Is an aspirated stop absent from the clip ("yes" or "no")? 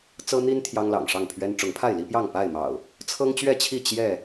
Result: no